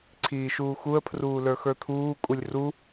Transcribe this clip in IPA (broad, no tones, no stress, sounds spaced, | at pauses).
ǀʰ iː ʃ uː x u ə̯ pʰ r uː l ə˞ x ə˞ t̪ʰ uː kʼ u lʲ r u